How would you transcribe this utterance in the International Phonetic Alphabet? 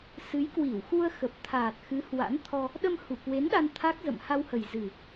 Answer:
sɨ˨˦jkwi˧˩wxu˧ə̯ xə˨˩p̚t̪ʰaː˨˩t̚ xɨ˨˦hwa̰˧˥nt̪ʰɔ˧ | ɗə˧mhu˧˩kwe˨˦n ɗa˧nt̪ʰa˦˥k̚zə̰˧˨mha˧w hə˨˩jzɨ˨˩

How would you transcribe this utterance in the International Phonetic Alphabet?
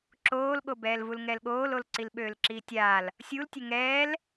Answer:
ǁoːlɠobɛːlvul ŋɛlɠoːlol ǀilɓøːlǁiːtʲaːl | sʲultʲø ŋɛːl

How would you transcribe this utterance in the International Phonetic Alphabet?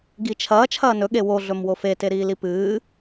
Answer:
ɡit͡ʃʰɐː t͡ʃʰɐːnɵ ɠewo ɮɵmwofe teɾiːlipɨː

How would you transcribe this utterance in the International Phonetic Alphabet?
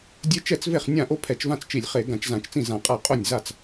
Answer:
dʲe˥ t͡ʃɛ˥˩t͡sve˥˩χ nʲã˥˩ ʔo˥pʰɛ˧˩˧t͡ʃvã˥˩t͡st͡ʃi˧˩˧lʲ χe˧˩˧ ɡã˧˩˧t͡ʃzã˧˩˧t͡ʃt͡sĩ˥˩zã˧˩˧ qʼa˥˩ qʼo˥˩nʲ za˥˩t͡s

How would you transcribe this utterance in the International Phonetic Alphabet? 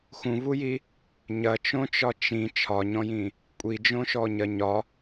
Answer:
xũvuji | ɲɐt͡ʃõt͡ʃɒ t͡ʃĩ t͡ʃʰɒɲɔ̃jĩ | kʷʼid͡ʒõʃɔɲɐ ɲɒ

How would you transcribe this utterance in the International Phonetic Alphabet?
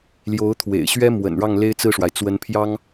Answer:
ljo˧˥ʊ̯ t̪ʰwḛ˨˩ɪ̯ɕɥɛ˥mwə̰˨˩n ɻɑ˥˩ŋle˥ɪ̯t͡sɹ̩˥˩ʂwa˩ɪ̯ t͡swə˧˥npʰjɑ˥ŋ

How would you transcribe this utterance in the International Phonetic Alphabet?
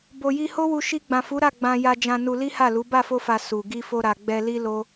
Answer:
bo˨ji˧ho˦wu˧ ʃi˧ɡ͡bã˨fu˨˦ɾa˦˨ ɡ͡bã˧ja˧ d͡ʒã˧nu˧ li˦ha˦˨lu˨˦ ba˦˨fo˧fa˨ su˨ ɡi˧fo˧ɾa˨ ɡ͡bɛ˧li˦ lo˦

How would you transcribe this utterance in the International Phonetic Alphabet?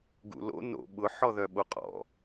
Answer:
ɡṵlo̰ no̰ ɓʊ ħɔðœɓoqʼɔ̰

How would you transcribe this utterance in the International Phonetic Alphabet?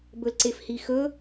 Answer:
bɵlǀefhixɵ

